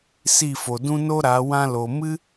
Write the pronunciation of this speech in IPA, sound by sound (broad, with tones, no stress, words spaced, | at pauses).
si˦˨fo˨dũ˦ no˦ ɾa˨˦ wã˧ lo˨mɨ˦